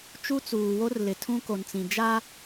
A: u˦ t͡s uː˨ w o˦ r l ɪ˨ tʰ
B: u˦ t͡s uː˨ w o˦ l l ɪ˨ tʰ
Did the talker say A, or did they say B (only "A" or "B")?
A